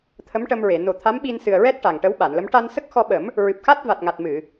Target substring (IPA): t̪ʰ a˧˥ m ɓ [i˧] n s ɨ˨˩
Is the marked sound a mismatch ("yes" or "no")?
no